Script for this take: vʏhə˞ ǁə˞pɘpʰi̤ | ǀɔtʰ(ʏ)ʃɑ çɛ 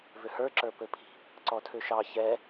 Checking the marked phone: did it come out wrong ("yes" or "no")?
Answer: no